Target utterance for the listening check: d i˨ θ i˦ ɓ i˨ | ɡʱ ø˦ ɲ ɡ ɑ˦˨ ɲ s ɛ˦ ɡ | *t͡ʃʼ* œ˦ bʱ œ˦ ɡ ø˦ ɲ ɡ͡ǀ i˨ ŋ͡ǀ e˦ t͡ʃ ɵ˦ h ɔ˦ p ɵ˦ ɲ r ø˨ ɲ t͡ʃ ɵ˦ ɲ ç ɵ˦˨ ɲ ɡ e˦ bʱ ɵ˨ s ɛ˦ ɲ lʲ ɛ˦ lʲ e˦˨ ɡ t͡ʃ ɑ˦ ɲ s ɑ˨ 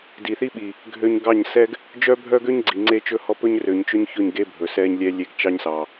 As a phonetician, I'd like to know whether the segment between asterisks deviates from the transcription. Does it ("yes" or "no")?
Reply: yes